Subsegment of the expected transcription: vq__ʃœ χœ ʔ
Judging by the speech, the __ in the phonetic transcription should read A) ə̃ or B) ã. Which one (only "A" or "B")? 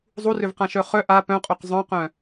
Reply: B